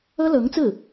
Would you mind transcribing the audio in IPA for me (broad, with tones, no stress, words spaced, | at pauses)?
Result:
ɤ˥lɤ˧˥ŋt͡sɹ̩˥˩